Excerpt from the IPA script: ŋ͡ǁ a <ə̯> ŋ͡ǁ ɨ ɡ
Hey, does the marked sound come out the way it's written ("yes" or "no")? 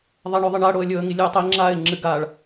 no